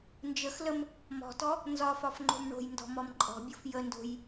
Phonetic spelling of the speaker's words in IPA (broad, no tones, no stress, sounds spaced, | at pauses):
n d͡ʒ ə x l ə m | m ɔ̤ t ɔ | n z ɒ f ɒ f ŋ͡ǃ o̤ m ɳ o̤ j n d ɔ̤ m ɔ m ǃʼ ɔ̤ bʲ o f j ə n d o̤ j